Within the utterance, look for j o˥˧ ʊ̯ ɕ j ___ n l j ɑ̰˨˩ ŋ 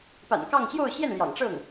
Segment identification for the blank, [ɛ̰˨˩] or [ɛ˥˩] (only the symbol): ɛ˥˩